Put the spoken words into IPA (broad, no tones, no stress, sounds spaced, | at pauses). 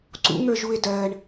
ǀ ṵ ŋ ə˞ ʒ u e̯ d ɜ ɳ